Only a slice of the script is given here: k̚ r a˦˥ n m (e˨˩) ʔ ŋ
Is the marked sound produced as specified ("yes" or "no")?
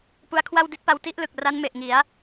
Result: yes